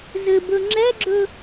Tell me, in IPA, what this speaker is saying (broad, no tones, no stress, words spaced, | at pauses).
zɘbɵ ŋ͡ǁɛɡ͡ǁɵ